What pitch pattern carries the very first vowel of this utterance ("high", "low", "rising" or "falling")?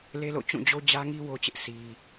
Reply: high